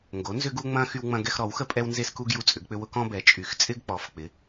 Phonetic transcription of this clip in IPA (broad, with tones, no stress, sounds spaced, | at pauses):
ŋ ɡ o˩˥ n z ʏ˦ ɡ u˦ ŋ͡m ɐ̃˦ x y˦ w ŋ͡m ɐ̃˦ ɡ ɛ˦ x ɾ ɔ˩˥ w x ə˦ pʼ ɛ˦ w n z e˦ s k u˦ ɡ j u˦ t͡sʼ ʏ˩˥ ɡ k͡p ʏ˦ w ʊ˦ k ɔ̃˦ b ɛ˩˥ t͡ʃʼ y˩˥ x t͡sʼ ɪ˦ ɡ k͡p ɔ˩˥ f k͡p ɪ˩˥